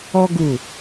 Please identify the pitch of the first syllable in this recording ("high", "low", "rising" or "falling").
high